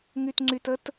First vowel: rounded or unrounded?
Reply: rounded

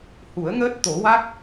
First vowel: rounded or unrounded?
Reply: rounded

